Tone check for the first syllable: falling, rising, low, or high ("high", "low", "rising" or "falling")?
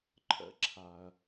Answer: high